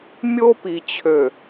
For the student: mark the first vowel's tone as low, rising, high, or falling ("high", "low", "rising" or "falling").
high